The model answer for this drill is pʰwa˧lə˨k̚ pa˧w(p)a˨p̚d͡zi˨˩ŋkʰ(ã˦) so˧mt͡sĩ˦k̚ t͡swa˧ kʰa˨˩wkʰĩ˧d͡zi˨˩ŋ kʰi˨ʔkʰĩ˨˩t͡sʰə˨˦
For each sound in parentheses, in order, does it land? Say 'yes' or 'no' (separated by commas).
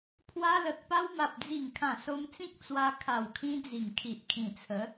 no, no